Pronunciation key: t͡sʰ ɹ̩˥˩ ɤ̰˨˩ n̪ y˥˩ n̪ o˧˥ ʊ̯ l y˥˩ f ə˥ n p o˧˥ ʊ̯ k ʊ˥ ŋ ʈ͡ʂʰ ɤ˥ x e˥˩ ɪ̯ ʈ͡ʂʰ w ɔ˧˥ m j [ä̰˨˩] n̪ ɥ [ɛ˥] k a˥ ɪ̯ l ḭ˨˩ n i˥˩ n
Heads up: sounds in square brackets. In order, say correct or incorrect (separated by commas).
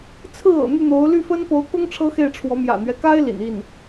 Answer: correct, incorrect